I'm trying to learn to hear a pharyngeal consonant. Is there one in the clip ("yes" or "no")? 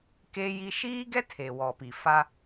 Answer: no